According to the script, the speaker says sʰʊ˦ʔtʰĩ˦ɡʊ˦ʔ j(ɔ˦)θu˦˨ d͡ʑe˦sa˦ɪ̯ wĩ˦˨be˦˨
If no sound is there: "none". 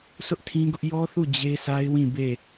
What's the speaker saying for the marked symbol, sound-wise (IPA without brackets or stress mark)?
ɔ˦